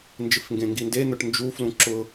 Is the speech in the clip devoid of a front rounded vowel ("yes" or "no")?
yes